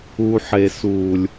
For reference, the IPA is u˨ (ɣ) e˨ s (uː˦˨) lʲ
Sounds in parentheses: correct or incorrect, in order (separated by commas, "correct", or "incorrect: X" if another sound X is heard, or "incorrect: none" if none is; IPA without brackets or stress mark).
incorrect: ħ, incorrect: uː˨